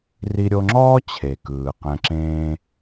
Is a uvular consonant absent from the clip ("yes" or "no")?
no